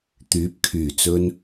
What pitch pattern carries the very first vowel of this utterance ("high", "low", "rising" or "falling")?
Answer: rising